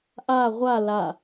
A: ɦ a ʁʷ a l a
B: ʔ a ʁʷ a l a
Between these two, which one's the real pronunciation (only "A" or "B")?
B